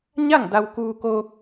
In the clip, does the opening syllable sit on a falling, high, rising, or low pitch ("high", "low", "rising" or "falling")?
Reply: falling